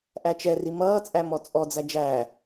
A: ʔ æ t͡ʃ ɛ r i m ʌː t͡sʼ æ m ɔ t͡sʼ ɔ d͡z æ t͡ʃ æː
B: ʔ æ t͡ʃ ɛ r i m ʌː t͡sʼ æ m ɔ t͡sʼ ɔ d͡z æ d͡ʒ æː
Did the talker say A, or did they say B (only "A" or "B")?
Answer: B